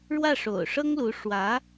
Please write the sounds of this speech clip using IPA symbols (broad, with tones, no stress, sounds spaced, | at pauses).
ɻ w ä˥˩ ʂ o̰˨˩ ʊ̯ ʂ ɤ˥ ŋ l u˧˥ ʂ w ä˧˥